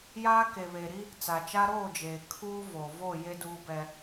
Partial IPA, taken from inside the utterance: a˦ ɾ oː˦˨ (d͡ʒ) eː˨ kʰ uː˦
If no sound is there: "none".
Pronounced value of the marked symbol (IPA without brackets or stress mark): d͡ʒ